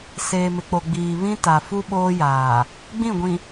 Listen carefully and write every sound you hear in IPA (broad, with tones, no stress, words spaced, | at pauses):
seː˨mɪ˨k͡po˨ ɡ͡biː˨βĩ˦ ta˨ fu˦ɓoː˦jaː˨ | ɡ͡bĩ˦˨ɡʷĩ˨